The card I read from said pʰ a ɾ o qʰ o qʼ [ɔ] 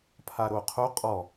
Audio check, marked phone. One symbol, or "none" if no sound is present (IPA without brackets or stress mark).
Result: ɔ